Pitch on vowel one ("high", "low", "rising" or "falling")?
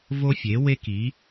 high